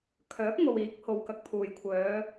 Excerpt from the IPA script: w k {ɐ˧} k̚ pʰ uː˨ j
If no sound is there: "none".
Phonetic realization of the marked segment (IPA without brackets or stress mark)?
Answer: ɐ˨˥